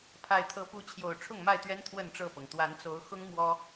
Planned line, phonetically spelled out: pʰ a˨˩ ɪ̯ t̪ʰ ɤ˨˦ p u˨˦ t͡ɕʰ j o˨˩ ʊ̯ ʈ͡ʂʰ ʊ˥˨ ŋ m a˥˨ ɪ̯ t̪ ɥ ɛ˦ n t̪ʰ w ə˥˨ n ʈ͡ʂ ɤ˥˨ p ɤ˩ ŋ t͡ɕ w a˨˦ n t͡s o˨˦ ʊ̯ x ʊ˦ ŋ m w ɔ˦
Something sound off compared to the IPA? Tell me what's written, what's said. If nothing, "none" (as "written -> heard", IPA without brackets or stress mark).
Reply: t͡ɕ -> t̪